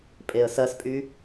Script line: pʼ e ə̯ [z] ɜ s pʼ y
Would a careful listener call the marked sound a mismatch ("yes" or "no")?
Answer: yes